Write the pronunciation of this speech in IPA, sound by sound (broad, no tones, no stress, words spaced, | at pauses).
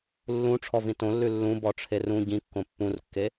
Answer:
lːũ ʈ͡ʂʰɔvĩtõlːʉ lːũ bɔʈ͡ʂʰerũ ɟĩkːõ pːũrkːe